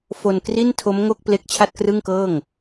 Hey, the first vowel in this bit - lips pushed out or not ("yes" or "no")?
yes